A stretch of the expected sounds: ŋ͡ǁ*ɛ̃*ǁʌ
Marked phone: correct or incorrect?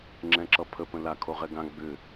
correct